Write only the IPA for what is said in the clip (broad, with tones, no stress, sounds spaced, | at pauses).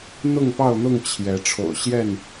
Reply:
n̪ ʊ˥˨ ŋ p ɑ˥˨ ʊ̯ n̪ ʊ˥˨ ŋ t͡ɕʰ j ɛ˨˦ ʈ͡ʂʰ o̰˨˩ ʊ̯ ɕ j ɛ˥˨ n